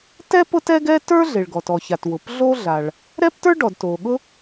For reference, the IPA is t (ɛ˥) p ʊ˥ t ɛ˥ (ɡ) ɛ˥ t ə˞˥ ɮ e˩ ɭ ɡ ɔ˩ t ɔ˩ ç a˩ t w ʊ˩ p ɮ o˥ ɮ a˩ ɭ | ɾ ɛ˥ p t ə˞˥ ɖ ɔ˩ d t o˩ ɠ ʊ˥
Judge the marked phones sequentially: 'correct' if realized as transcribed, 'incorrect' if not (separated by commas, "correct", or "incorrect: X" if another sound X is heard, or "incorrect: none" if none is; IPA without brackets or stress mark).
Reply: correct, correct